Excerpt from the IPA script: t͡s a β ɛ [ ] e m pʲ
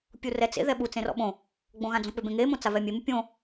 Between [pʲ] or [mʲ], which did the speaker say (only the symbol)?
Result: mʲ